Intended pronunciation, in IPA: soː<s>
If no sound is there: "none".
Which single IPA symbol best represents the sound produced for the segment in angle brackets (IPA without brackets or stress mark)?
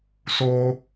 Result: none